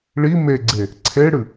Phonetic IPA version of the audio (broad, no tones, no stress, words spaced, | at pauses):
ɭi meɡ͡ǀe | ǀʰeɽɨ